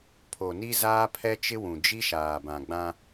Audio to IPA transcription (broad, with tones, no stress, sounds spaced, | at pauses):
pʰ o˨ n i˦ z aː˦ pʰ ɛ˦ t͡ʃ ɪ˦ w ũ˨ d͡ʒ i˦ ʃ aː˨ b ã˨ ɡ͡b ã˦